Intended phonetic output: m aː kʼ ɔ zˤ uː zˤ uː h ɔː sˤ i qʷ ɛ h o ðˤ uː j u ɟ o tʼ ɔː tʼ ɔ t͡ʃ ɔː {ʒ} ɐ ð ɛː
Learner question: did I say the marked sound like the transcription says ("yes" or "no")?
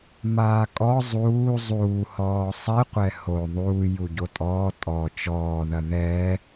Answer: no